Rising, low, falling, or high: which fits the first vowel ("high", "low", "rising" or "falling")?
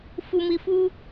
low